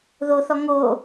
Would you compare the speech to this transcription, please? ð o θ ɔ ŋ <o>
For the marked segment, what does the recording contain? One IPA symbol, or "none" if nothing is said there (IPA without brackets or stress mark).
o